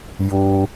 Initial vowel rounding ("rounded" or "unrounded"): rounded